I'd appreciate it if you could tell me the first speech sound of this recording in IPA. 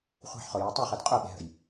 χʷ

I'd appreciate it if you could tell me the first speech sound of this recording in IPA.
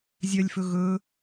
zʲ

